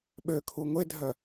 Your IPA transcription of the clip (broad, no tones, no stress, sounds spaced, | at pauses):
ɓ ø kʰ u ŋʷ e dʱ œ